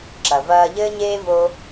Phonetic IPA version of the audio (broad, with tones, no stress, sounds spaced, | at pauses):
ǁ ɐ˨ v ɐː˧ ʎ ɘː˦ ɲ eː˦ v o˦